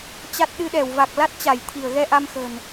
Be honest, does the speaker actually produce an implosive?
yes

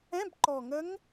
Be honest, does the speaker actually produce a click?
yes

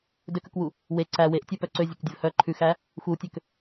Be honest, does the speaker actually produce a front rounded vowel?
yes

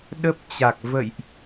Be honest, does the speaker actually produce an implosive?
yes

